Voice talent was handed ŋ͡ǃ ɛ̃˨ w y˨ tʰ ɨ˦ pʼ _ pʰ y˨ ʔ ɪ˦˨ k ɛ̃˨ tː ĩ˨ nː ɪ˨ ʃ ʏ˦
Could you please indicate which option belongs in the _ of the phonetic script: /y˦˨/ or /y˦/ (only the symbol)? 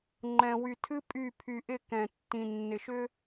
y˦˨